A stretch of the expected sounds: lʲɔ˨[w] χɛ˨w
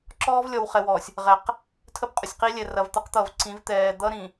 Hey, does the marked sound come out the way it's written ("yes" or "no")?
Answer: yes